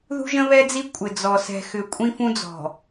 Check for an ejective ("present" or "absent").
present